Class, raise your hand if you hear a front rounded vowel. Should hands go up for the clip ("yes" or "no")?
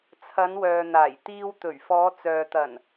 yes